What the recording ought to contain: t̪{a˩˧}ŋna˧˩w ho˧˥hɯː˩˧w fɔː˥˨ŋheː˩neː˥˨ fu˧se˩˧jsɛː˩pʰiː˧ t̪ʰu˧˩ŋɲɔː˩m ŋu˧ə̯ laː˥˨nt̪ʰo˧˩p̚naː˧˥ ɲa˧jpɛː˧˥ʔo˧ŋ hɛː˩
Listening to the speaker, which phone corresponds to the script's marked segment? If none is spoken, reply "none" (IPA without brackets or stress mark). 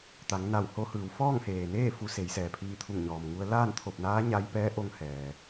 a˩˧